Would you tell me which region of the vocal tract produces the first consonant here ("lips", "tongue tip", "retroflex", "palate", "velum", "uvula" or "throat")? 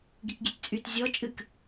velum